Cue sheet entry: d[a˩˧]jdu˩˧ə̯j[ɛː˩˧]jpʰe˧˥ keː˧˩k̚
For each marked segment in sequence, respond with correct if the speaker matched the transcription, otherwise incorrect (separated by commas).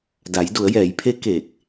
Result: correct, correct